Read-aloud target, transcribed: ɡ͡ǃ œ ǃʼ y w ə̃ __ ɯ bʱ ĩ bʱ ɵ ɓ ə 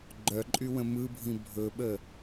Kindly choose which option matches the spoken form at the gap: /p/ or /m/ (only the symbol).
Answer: m